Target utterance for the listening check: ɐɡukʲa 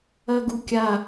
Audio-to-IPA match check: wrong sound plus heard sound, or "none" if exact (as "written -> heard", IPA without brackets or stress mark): none